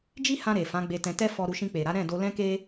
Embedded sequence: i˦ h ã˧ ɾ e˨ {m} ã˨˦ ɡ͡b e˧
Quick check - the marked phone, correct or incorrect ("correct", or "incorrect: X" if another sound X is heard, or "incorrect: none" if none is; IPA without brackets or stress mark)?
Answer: incorrect: f